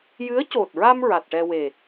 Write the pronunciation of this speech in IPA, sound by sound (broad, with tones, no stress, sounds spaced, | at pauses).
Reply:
j ɨ˧˥ ə̯ c o˨˩ t̚ ɹ a˧ m ɹ a˨˩ t̚ ʈ ɛ˧ w e˨˩